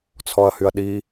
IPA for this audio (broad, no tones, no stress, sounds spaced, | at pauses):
t͡sʰ ɔ ɐ̯ h y ɐ̯ ɗ i